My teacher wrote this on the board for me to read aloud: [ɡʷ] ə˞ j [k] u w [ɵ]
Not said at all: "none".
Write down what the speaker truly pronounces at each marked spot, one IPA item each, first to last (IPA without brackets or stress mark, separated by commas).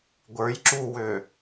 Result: ɡʷ, ǁ, ø